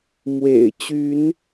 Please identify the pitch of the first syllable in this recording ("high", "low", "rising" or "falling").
low